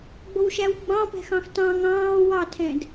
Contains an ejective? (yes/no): no